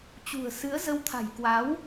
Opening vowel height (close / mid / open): close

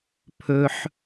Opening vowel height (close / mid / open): mid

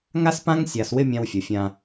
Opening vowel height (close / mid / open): open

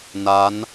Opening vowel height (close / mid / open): open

